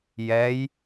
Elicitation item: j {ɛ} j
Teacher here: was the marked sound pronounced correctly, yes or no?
yes